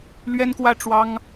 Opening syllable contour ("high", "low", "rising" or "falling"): high